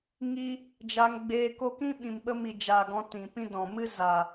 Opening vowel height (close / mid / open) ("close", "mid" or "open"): close